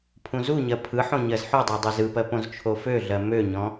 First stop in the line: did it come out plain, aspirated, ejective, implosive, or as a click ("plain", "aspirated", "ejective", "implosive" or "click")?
aspirated